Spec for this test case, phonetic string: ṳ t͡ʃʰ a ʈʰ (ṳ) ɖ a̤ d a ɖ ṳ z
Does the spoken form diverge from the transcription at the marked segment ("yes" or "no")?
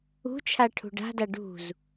no